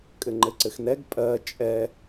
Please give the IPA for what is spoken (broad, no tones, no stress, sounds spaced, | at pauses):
kʼ ɘ ŋ͡ǃ ɘ ǀ ɘ x n ɛ ɡ pʼ ɜ t͡ʃʼ ɛ